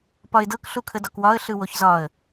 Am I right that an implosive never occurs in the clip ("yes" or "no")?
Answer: yes